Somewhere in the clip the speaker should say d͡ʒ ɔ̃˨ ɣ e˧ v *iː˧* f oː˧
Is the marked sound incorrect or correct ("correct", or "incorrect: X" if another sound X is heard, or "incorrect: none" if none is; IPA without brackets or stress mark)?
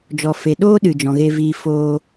correct